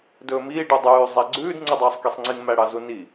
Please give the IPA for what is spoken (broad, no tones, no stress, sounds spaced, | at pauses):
d ɵː m iː ɖ u dˤ ʉː zˤ ɛ ɡ͡ǀ ʉː d ŋ͡ǀ u dˤ ɵː sˤ k i sˤ ŋ͡ǀ i ŋ m æ ɽ ɑ z u n i